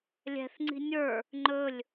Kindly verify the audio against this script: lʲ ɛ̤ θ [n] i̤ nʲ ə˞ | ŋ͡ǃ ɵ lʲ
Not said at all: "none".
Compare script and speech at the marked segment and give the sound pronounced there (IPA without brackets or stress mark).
ŋ͡ǀ